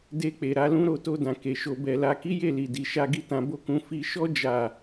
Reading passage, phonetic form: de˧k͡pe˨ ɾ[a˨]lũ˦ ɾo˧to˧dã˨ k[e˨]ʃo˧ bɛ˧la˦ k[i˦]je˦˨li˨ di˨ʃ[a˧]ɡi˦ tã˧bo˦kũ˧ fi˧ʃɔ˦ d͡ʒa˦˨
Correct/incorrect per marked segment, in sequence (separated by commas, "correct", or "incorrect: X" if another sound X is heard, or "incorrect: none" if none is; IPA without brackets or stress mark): incorrect: a˧, correct, correct, correct